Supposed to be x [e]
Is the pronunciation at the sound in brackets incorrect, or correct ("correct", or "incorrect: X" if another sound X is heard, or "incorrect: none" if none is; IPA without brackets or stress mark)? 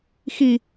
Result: incorrect: i